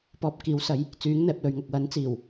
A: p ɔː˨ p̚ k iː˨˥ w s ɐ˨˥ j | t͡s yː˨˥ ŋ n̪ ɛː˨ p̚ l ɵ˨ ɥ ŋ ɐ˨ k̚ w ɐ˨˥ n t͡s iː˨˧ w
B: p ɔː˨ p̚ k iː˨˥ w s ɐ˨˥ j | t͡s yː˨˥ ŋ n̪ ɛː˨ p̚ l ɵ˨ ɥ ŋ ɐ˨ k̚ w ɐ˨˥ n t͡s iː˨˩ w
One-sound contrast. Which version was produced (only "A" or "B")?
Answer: B